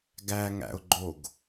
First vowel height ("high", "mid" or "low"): low